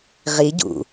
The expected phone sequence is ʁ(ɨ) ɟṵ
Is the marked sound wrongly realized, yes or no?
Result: yes